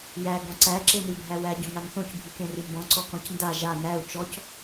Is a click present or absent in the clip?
present